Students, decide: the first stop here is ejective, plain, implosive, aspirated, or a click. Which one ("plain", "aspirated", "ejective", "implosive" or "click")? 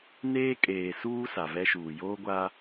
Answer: ejective